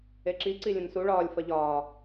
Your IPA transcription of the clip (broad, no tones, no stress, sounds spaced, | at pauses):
e ǁ i ǀ i lʲ ə̃ n s u ɭ ɒː lʲ f ɐ ʎ ɒː